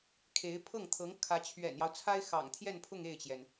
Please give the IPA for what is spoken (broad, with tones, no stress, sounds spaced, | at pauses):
kʰ e˧˥ ɪ̯ pʰ ɤ˥˩ ŋ t̪ʰ ɤ˧˥ ŋ kʰ ä˧˥ t͡ɕʰ ɥ ɛ̰˨˩ n j ɑ˦ ʊ̯ t͡sʰ a˥ ɪ̯ x ɑ̰˨˩ ŋ t̪ʰ j ɛ˥˧ n pʰ ʊ˥˧ ŋ e˥˩ ɪ̯ t͡ɕ j ɛ˩ n